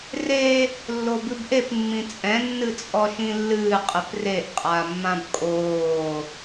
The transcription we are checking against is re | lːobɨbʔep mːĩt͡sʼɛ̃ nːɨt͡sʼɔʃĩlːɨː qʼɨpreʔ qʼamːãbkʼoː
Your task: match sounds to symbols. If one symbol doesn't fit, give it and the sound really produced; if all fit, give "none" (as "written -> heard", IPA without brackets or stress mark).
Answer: none